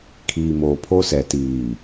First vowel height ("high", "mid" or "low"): high